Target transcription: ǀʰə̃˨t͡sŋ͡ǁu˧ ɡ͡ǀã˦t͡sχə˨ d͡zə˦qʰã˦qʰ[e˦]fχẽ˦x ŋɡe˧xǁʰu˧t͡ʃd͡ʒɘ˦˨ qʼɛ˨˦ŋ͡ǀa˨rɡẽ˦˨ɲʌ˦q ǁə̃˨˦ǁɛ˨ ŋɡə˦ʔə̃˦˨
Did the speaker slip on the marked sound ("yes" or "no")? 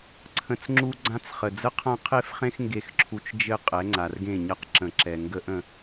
no